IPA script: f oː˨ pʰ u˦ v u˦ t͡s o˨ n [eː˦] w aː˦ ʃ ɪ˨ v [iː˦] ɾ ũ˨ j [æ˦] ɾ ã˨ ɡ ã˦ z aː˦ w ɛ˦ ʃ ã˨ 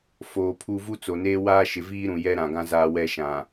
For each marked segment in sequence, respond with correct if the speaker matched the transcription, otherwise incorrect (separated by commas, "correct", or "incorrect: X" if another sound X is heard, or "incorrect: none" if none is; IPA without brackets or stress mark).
correct, correct, incorrect: ɛ˦